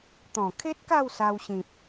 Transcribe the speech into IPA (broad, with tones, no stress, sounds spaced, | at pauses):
t̪ ɔ̃˨˩ kʰ e˦ t̚ k a˥˧ w s a˧ w ɕ ĩ˨ p̚